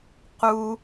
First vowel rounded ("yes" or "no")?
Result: yes